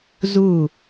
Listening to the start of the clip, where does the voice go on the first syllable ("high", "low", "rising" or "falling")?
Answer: falling